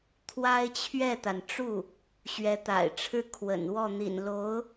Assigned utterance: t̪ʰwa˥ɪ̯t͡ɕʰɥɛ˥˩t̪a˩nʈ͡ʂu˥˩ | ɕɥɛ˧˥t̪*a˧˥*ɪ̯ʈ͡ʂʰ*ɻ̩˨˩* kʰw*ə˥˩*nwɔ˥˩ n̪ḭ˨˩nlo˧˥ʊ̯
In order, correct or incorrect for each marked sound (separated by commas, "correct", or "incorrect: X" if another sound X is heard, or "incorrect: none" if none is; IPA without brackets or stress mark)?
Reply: incorrect: a̰˨˩, incorrect: ɻ̩˥˩, incorrect: ə̰˨˩